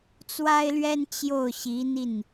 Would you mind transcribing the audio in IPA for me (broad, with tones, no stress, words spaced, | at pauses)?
t͡swa˥ɪ̯lɥɛ˥n t͡ɕjo˥˩ʊ̯ɕi˧˥n̪i˥˩n